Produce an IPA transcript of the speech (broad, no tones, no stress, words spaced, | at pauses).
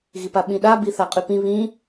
ɣipaɓĩɗa biθaqʼypĩ βĩ